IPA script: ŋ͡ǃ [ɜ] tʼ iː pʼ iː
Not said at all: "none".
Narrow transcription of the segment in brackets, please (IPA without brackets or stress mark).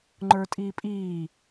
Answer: ə˞